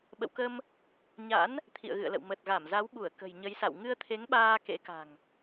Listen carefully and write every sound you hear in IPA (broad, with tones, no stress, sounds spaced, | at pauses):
ɓ ə̰˧˨ w k ə˧ m | ɲ a̰˧˥ n | t̪ʰ ḭ˧˨ ə̯ ɣ ɨ̰˧˨ ə̯ l ə̰˧˨ w m ə˨˩ t̚ ɣ a˧˩ m z a˨˦ w ɓ u˧˩ ə̯ k ə̤˨˩ j ɲ ə˨˦ j s a̰˧˨ w ŋ ɨ˧ ə̯ t̪ʰ e˨˦ ŋ ɓ aː˧ k ḛ˧˥ k a̤˨˩ ŋ